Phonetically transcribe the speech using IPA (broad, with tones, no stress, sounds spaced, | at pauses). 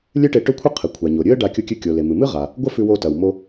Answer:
lʲ ɨ˥ ʈ e˧ ʈ ɵ˥ kʷʰ ɨ˥ qʰ ɨ˩ kʷʰ a˩ ɲ o˩ ɾʲ ɨ˥ ə̯ ɖ a˧ kʲ u˧ kʲ ʉ˧ kʲ o˩ l e˩ m ɨ˩ m ɨ˥ ʁ a˩ | ɡʷ ɐ˥ f ʉ˧ w o˧ t ɐ˩ w m o˧